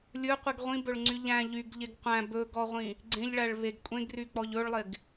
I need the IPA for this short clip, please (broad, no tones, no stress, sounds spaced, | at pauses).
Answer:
lʲ ɵ qʷ i ɡ ʁʷ ĩ b ɵ ɭ ŋ͡ǀ y ʎ æ̃ ʎ y ɡ ʎ e ɡ qʷ æ̃ b ɵ ɡ ɔ ʁʷ ĩ | ɡ͡ǀ ẽ ʎ ɭ æ ɭ β e ɡ kʷʼ ẽ ɡ r y k͡p ɔ ʎ ɵ ɭ lˠ e ɡ